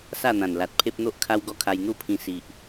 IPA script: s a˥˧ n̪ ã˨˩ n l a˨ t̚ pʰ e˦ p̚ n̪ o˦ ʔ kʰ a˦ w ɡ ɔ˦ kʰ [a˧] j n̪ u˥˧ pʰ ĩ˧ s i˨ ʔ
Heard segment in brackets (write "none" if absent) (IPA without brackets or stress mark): a˧